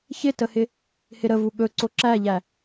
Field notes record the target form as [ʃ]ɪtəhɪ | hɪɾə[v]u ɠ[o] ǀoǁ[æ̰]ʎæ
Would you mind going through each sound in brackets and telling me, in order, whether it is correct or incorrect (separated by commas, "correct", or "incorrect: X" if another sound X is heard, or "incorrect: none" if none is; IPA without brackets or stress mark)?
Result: incorrect: ç, correct, incorrect: ɵ, incorrect: æ